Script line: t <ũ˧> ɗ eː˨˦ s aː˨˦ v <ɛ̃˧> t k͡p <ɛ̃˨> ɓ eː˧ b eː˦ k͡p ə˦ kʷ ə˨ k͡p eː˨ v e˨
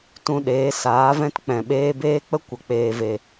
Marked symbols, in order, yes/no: yes, no, yes

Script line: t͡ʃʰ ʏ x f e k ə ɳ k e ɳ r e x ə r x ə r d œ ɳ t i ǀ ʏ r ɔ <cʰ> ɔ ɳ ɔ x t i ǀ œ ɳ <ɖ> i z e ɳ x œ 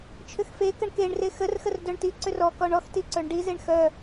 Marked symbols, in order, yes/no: no, yes

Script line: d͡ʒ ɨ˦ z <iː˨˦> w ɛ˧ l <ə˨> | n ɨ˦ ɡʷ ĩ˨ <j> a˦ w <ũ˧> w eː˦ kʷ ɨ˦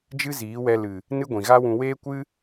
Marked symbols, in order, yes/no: yes, no, no, yes

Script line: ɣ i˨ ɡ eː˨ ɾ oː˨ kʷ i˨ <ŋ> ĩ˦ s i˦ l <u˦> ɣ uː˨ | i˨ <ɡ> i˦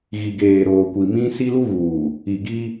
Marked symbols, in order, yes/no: no, yes, yes

